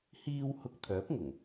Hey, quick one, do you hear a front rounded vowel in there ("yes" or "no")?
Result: yes